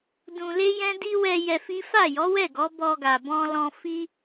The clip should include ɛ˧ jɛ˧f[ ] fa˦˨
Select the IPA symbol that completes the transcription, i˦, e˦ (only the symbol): i˦